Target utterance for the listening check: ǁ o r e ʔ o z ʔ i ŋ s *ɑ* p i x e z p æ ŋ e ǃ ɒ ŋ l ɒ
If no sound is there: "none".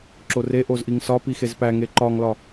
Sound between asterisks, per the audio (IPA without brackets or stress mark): ɒ